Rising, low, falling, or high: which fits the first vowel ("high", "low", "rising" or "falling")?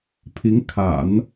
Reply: rising